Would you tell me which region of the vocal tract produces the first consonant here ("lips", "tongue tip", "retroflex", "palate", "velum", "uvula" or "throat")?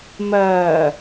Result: lips